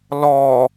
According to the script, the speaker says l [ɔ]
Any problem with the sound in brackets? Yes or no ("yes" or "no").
no